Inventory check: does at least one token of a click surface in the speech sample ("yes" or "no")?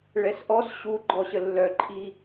yes